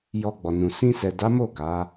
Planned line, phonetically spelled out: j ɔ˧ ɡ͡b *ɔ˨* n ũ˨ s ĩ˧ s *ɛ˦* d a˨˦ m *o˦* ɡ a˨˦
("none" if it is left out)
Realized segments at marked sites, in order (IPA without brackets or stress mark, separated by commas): ɔ˨, ɛ˨, o˦˨